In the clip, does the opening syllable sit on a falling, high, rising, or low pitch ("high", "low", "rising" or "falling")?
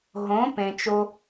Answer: rising